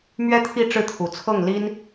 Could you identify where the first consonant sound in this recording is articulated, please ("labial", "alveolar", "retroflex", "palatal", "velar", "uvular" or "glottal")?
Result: labial